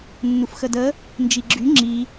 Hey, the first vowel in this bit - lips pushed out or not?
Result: yes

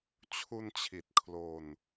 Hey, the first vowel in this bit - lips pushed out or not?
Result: yes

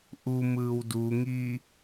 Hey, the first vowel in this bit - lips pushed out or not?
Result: yes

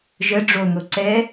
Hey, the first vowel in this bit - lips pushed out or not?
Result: no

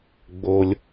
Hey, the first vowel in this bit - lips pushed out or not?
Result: yes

